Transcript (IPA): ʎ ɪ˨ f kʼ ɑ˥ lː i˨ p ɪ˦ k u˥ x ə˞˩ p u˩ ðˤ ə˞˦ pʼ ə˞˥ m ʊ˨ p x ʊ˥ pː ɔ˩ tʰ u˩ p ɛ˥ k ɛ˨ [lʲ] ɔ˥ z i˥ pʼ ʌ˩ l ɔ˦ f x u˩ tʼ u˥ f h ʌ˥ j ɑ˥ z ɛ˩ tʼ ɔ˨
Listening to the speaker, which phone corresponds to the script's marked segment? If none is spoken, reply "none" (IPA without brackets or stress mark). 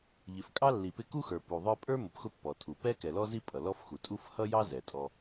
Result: l